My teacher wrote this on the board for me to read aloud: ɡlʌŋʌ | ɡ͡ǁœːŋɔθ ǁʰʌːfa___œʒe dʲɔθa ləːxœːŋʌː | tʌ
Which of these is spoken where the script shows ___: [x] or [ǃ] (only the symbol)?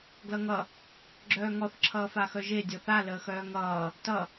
x